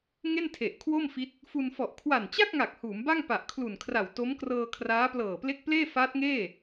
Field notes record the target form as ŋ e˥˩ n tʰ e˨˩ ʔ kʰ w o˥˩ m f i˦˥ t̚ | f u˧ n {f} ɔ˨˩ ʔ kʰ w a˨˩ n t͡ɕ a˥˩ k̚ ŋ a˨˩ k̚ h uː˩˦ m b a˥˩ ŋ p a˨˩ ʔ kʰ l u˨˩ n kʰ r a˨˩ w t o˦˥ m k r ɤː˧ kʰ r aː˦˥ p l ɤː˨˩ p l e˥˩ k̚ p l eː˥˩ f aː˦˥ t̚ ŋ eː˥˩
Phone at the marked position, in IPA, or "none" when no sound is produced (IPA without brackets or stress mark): f